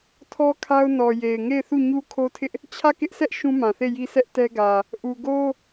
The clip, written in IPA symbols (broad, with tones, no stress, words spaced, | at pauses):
tʰɔ˦kʰa˦ʊ̯nɔ˨je˨ɪ̯ ŋe˦˨ɪ̯θu˦˨ ɲu˦kʰo˦tʰɪ˦ʔ | t͡ɕʰä˦˨kɪ˦ʔsʰɛ˦ʔ ʃũ˦mã˨θe˦˨ji˦ sɛ˦ʔtɛ˦ ɡä˨ | ʔu˨ɡo˦